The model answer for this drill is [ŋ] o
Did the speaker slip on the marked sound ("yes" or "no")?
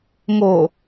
no